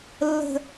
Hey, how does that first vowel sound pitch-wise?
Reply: high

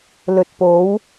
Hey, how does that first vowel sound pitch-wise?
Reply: low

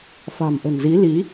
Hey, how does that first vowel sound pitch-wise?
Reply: low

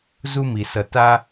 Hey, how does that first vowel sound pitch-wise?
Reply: high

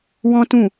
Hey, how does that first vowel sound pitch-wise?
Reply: high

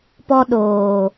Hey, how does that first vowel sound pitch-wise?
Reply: high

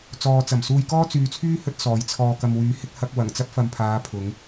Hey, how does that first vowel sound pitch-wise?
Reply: low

